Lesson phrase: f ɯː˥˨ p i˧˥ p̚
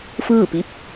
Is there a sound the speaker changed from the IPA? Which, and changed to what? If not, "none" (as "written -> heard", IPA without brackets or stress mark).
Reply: none